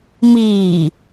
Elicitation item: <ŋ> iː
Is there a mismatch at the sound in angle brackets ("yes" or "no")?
yes